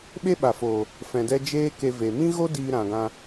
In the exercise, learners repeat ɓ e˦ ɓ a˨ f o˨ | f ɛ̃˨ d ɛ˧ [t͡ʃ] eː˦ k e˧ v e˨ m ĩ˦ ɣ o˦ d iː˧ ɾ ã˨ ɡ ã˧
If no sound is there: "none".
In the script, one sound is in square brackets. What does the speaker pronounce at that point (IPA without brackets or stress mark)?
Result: d͡ʒ